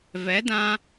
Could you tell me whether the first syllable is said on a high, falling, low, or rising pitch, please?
rising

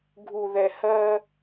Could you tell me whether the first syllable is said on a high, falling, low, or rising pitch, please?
low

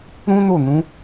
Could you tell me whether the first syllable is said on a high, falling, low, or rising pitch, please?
high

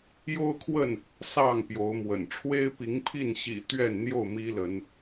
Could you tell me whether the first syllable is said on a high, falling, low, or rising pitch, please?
high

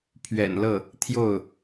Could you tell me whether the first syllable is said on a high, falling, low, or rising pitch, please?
low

